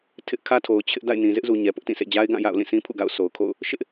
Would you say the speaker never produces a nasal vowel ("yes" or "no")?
no